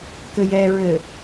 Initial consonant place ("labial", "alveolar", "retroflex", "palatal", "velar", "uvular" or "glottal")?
velar